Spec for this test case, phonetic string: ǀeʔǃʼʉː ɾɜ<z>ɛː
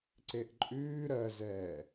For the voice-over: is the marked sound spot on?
yes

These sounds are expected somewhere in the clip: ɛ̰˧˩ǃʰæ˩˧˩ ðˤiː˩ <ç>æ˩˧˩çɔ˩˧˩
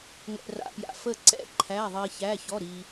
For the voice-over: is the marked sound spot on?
yes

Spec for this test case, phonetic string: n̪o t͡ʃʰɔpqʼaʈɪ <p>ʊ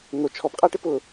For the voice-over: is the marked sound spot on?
yes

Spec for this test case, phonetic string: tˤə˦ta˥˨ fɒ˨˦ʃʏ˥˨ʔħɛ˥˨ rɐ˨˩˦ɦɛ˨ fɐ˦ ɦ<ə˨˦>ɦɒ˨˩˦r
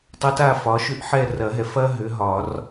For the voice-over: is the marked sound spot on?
no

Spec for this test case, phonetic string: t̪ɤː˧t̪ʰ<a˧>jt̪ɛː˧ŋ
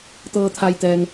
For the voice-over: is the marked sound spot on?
yes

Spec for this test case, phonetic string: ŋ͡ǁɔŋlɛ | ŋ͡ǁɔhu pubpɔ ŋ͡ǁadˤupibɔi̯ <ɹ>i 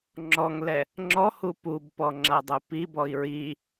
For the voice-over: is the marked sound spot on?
yes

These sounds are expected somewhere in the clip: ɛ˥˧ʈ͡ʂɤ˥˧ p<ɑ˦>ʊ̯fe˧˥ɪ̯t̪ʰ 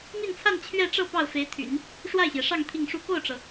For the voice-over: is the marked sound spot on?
no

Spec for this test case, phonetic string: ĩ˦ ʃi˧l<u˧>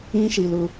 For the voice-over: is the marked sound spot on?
yes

